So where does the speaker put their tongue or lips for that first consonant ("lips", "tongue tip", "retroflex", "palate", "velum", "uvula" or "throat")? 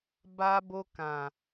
lips